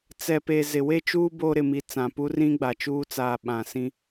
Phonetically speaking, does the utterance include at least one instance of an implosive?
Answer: yes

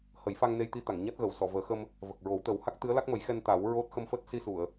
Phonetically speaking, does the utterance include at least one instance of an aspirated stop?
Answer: no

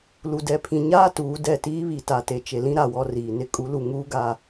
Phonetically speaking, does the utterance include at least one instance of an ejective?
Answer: yes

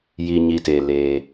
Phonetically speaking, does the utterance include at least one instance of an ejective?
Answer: no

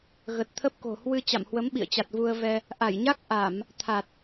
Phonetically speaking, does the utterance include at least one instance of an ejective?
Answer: no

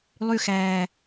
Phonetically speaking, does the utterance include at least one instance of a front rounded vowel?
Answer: yes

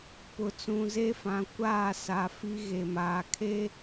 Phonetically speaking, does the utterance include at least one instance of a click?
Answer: no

